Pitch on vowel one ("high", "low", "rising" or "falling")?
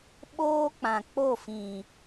high